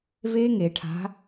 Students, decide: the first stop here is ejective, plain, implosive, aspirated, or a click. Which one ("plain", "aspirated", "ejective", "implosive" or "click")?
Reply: aspirated